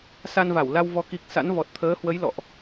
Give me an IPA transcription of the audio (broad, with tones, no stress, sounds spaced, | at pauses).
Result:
s a˧ n v a˧˩ w l a˧ w v ɔ˨˦ k i˨˩ k̚ s a̰˧˥ n v ɔ˨˩ t̚ t̪ʰ əː˨˦ h w ə˨˦ j l ɔ̰˧˨ ʔ